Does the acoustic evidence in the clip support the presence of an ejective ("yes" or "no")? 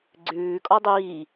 yes